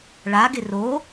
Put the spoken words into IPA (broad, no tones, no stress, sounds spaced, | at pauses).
ɭ a ɡ ɪ r o